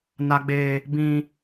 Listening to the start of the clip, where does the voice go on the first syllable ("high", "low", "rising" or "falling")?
high